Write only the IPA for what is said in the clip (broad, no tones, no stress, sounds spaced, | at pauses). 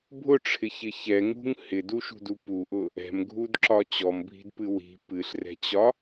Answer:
bʱ ʊ ʈ͡ʂʰ ɪ ç ɪ ç ɛ ŋ ṳ ŋ h ɪ d u ʃ ṳ d u p u ʔ ʊ | ɛ̤ m ɡʱ u d ǁ ɒ t͡ɕ ɔ m bʱ i̤ d p ɨ w i̤ p ɨ ɬ r ɛ̤ t͡ɕ ɒ